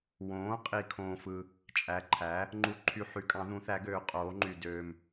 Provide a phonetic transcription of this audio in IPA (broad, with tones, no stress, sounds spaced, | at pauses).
w õː˩˥ qʼ i˨ kʰ õː˨ f ɯ˨ | t͡ʃʼ æ˩˥ ǃʰ æ˩˥ | ŋ͡ǃ u˨ ǃʰ y˨ ħ y˩˥ kʼ ɑ̃˩˥ ð ũ˩˥ θ æ˩˥ ɡ øː˩˥ qʼ oː˩˥ ŋ͡ǃ y˨ d øː˨ m